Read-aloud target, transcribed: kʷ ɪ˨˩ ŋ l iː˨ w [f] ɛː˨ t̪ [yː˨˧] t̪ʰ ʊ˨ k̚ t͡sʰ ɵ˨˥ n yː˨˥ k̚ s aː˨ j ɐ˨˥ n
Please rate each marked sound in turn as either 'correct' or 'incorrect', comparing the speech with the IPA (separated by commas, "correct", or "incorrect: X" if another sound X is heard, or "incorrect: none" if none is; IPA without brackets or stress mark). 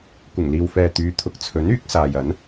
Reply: correct, correct